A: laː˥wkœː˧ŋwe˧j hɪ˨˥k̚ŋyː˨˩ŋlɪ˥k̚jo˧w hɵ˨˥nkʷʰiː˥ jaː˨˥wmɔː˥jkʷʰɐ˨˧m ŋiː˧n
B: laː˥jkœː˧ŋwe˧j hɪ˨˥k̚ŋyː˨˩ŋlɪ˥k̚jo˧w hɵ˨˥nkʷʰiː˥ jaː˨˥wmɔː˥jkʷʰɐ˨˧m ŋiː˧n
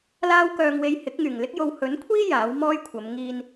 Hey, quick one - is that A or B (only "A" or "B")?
A